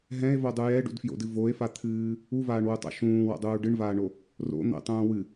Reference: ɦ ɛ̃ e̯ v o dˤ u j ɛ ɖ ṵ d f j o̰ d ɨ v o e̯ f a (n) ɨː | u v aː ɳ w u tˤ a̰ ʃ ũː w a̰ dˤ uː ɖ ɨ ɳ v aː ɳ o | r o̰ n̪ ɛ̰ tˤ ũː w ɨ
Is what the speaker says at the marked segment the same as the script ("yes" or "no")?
no